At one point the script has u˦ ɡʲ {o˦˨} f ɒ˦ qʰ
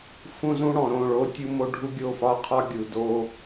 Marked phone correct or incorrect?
correct